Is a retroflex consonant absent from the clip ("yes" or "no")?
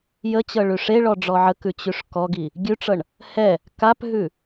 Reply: no